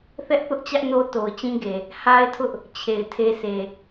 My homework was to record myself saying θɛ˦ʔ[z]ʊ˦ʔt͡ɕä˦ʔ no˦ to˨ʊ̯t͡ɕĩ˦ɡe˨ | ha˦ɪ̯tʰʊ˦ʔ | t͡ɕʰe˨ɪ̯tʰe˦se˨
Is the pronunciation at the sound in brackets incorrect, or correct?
incorrect